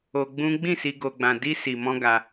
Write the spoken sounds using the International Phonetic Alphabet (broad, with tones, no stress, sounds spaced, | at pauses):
o˧ ɡ͡b ũ˦ ɡ͡b ĩ˦˨ s i˧ ɡ o˧ ɡ͡b ã˧ d i˦ s i˧ m ɔ̃˦ ɡ a˧